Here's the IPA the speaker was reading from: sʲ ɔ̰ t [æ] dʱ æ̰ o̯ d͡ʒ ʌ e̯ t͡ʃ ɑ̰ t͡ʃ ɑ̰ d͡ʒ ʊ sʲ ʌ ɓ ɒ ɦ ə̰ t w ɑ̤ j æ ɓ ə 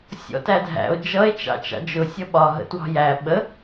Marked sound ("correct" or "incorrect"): correct